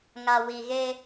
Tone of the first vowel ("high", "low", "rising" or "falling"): low